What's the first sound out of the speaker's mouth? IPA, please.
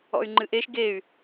ɔ̰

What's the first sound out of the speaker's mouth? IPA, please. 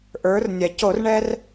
ʔ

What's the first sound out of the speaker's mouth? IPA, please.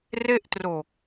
r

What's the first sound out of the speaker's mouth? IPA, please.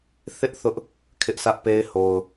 θ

